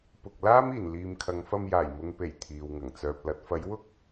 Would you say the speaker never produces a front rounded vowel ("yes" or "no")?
no